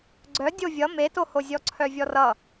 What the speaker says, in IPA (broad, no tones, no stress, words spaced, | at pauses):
ɡ͡ǀœ dʲovʲʌ metoho zʲɔǀʰœvʲɔrʌ